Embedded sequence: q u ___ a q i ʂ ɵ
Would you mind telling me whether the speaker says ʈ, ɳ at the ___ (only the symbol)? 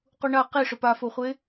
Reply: ɳ